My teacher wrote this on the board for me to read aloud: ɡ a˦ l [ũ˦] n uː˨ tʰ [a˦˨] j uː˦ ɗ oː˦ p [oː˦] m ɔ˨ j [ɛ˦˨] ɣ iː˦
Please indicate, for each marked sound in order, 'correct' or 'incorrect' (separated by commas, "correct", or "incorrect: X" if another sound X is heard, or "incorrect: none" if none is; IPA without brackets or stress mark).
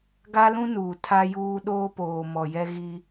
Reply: correct, incorrect: a˦, incorrect: oː˨, incorrect: ɛ˦